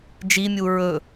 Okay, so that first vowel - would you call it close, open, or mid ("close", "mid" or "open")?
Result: close